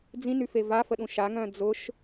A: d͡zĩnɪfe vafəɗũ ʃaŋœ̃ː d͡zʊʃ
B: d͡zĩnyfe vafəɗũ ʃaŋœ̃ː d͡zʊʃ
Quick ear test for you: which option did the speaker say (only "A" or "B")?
B